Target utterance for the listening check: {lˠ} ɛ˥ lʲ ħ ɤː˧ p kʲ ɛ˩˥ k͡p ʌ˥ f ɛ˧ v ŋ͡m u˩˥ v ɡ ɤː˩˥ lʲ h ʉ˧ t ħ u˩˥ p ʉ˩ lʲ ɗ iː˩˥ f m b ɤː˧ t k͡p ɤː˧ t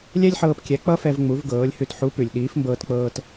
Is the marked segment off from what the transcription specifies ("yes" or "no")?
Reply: yes